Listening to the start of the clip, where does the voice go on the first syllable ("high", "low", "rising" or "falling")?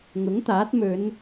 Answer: rising